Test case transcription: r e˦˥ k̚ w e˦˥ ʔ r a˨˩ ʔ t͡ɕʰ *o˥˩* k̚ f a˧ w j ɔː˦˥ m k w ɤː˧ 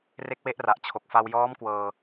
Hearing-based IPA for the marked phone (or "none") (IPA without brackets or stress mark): o˨˩